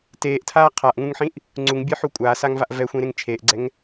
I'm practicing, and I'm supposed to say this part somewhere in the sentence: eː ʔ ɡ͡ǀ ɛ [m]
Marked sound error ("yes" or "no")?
yes